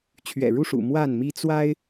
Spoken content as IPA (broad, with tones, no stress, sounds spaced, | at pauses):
t͡ɕʰ ɥ ɛ̰˨˩ ɻ u˥˨ ʂ ṵ˨˩ m w a˥˨ n m i˦ t͡s w a˦ ɪ̯